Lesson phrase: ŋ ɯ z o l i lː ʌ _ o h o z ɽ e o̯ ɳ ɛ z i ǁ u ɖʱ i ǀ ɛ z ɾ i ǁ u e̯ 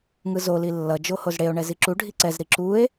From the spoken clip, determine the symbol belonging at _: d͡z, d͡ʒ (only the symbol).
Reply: d͡ʒ